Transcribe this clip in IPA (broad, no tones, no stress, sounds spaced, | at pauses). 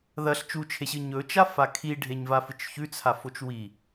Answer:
ð ɐ ɬ t͡ʃ u t͡ʃʰ e ɕ ɨ ɲ ɵ t͡ʃ a f a kʰ i ɖʱ e ɲ v a f ɨ t͡ʃ ç ʉ t͡sʰ a f o t͡ʃ w i